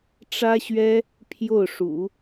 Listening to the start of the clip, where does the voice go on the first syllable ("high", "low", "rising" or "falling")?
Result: high